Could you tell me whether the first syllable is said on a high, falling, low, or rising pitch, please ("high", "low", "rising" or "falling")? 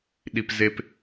low